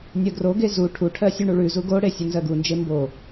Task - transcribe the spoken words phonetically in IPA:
nʲ ɜ ɡ r o ɡ e z u ʈʰ u ʈʰ ɜ sʲ u ɳ u ɭ ʉ z u ɡ o ɽ e sʲ u n z ɜ ɡ u n d͡ʒ e m b o

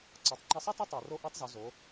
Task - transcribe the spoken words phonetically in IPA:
ǀ ɑ˩˧ tˤ ŋ͡ǃ ɛ˧ sˤ ɑ˥ t e˥ tˤ u˩ r o˧˥ ʔ œ˧˥ tˤ z u˩˧ z o˩˧

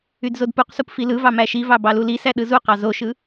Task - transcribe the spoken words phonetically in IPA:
y d z o d p u q s u p f i l ɯ v ɑ m æ ʃ i v ɑ b ɑ l u l i s æ ɗ ɯ z u q ɑ z o ʃ ɯ

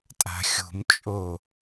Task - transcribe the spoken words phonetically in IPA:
tʼ a̤ xʲ ṳ m t͡ʃʼ o

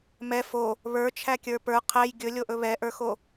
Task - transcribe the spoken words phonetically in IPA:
m ɛ f o | β ə˞ t͡ʃʰ æ kʲ ə˞ p ə˞ qʰ æ j ɡʲ ɵ lʲ o ʔ ɵ β ɛ ʔ ə˞ x o

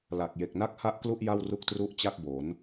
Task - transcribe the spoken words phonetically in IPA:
l a˨˩ k̚ j e˨˩ k̚ n a˥˩ k̚ h a˥˩ ʔ k l u˥˩ ʔ j a˥˩ w r u˥˩ k̚ t r u˥˩ ʔ t͡ɕ a˥˩ k̚ b o˩˦ n

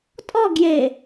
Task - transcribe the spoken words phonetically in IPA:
tʼ ɔ ɡ j e

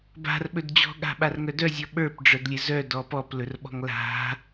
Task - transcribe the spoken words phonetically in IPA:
b a̤ r ɓ ɵ d d͡ʑ ɔ̤ ɠ a̤ ɓ a r ŋ œ d œ zʲ ɔ ɓ ə˞ p ɖ͡ʐ ə˞ d lʲ ɘ z œ d ɔ p ɔ p l ɵ r ɓ ɔ̤ ŋ l a̤

